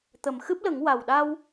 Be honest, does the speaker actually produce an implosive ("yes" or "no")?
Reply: yes